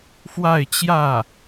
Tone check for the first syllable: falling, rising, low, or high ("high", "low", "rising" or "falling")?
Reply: falling